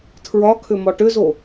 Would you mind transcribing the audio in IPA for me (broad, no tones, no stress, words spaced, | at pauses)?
tʰɹɒkʰʏ mɒʈʏzo